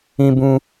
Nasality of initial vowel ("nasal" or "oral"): nasal